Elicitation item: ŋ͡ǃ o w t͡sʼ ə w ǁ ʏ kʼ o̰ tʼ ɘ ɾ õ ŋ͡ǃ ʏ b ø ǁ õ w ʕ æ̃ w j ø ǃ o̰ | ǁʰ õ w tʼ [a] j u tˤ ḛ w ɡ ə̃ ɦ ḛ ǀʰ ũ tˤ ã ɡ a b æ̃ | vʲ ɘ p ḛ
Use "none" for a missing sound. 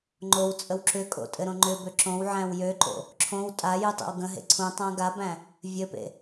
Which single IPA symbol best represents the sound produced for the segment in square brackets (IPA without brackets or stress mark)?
a